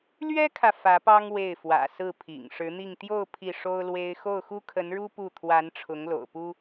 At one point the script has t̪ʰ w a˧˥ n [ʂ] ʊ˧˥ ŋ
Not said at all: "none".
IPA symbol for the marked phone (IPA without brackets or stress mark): ʈ͡ʂʰ